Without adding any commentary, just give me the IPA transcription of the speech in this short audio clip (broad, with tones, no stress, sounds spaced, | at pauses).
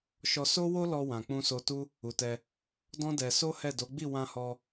ʃ ɔ˧ s o˦ w o˦ l ɔ˧ w ã˨ k͡p ũ˧ s o˧ t u˦ | u˨ t ɛ˧ | d ɔ̃˦ d ɛ˧ s o˦ h ɛ˦˨ d o˨˦ ɡ͡b i˦˨ w ã˧ h ɔ˧